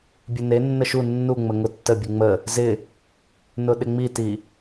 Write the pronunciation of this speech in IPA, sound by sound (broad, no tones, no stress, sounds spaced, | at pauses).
bʲ ɘ n e nː ə ʃ u nː u ŋ͡m ə ŋ ʊ tː ə bʲ u ŋ͡m ə | z ɪ | n ʊ ɗ ɪ ŋ͡m i t i